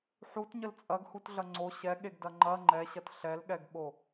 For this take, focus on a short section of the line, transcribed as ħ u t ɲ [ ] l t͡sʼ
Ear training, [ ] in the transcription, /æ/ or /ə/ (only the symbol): ə